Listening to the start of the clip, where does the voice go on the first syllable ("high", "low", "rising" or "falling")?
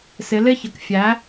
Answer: rising